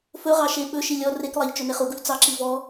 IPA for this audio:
f ɵ ʁ ɑ ʃ e ɓ ɵ ʃ i lʲ ɔ r e k lˠ ɑ ʎ t͡ʃ ɵ n e χ u ɡ u ʎ t͡s ɑ ǁ i v ɔ

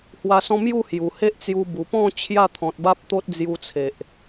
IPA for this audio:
h w a˧ s ɔ̃˦ m j u˥˧ h j u˨˩ h e˦ ʔ t͡s j u˧ b u˨˩ p ɔ̃˥˧ t͡ɕʰ j a˥˧ t̪ʰ ɔ̃˨ t̚ b a˦ p̚ t̪ o˦ t̚ d͡z j u˦ t͡sʰ e˨ ʔ

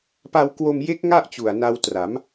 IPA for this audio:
p a˧ w k w o˧ m j e˦˥ k̚ ŋ a˥˩ ʔ t͡ɕ u˨˩ a̯ n a˧ w t r a˩˦ m

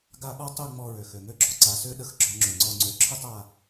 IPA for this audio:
ɡ a˦˨ ɓ ɔ˥ tˤ ø˦˨ ŋ͡m ɔ˦˨ ɹ ø˩ x ø˩ ŋ ø˥ ɡ͡ǁ ɔ˩ ǀ a˨˦ s ø˥ ɗ ə˨˦ x ɡ͡ǁ ɔ˨˦ ŋ͡ǁ ø˩ ŋ͡ǀ ɔ˦˨ ŋ͡ǀ ø˨˦ ǁʰ ə˥ tˤ a˦˨

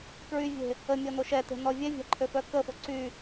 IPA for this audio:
k ɹ y vʲ e̤ | ə mʲ ɔ n o ʃ ɛ t e̤ n ɔ vʲ ɛ vʲ a̤ ǃʰ ø f œ k ə f o ǀ y

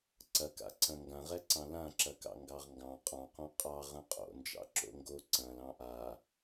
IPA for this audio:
ǀ ɐ k a̰ ǀ ɐ̃ ŋ ɡ ã ʁ ɛ ǀ ɑ̃ l ã ǁ ɐ k ɑ̰ ŋ ɡ ɑ ʁ ŋ ɡ ɑ̃ qʼ ɑ̃ q õ qʼ ɑ ʁ ɐ̃ qʼ o̰ n d͡ʒ ɑ̰ ǁ o̰ ŋ ɡ o ǀ ɐ̃ l ɑ̃ ʔ a

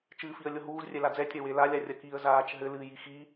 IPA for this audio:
t͡ʃ ɨː f i ə̯ lʲ o ɦ uː z rʲ ɛ l a d͡z ɛ tʲ ɐ w e l a lʲ a rʲ ɐ k i ə̯ z aː t͡ʃ ɦ ɘ l ɨː j i x i

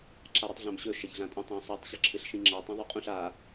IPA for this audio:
ǁ a ɾ i tˤ ɮ ã m ɕ ɵ ʃ ɐ ç ɮ ã tʼ ã tˤ ẽ sˤ i tˤ ɕ ɐ ǁʰ ɨ ɬ ʃ ĩ ŋ͡ǁ ɐ tˤ ĩ ðˤ ʉ qʼ ũ ɬ a

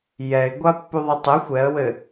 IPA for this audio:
j ɛ ɪ̯ ɡʷ a pː u ðˤ ɘ tˤ ɘ xʷ ɛ ə̯ w ɘ

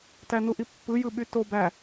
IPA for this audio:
t æ n u ʔ i pː ɯ j ɯ ɓ y t o b æ

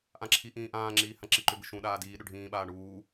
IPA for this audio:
ʔ ã ǁʰ i ʔ ĩː ʔ ãː ŋ͡ǁ iː h ã ǁ i ǃ ʏ b ɪ ʃ ũ ɗ aː d iː ɗ ʏ ɖʱ ĩː ɓ aː ɳ uː

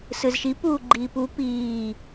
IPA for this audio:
s ɯ z ʃ i p uː ɡ͡ǃ iː p u p iː

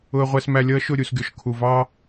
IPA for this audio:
ʊ˨ ə̯ ʁʷ æ˨ s m æ˨ lʲ ʌː˦ ʃ ʊ˦˨ ɾʲ u˨ s ɡʲ ɔ˨ ʃ kʰ u˨ v ɑː˦

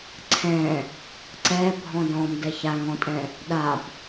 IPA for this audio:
ǀʰ ɛ̃ | ǀ ɛ bʱ ɔ̃ d ɔ̃ m d ɛ ç a ŋ ɔ̃ tʼ ɛ̃ | ɗ a b

